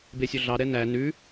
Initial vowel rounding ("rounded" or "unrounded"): unrounded